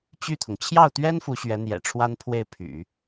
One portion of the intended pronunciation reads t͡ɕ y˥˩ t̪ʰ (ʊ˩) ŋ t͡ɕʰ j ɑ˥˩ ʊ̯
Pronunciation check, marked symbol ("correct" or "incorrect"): correct